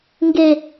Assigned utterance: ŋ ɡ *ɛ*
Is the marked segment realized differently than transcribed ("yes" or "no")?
yes